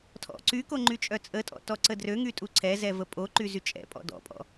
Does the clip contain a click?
yes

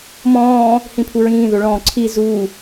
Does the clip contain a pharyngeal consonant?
no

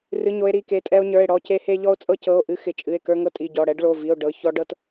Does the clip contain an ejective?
yes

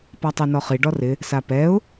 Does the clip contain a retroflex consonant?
yes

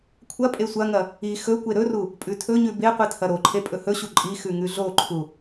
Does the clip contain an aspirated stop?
yes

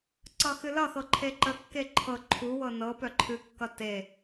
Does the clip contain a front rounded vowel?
yes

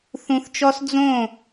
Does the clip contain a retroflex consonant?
no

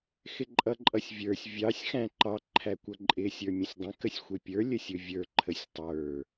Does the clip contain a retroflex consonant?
no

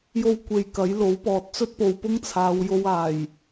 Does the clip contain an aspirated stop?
yes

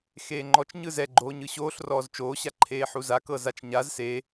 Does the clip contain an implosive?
no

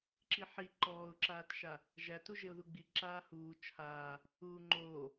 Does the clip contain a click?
yes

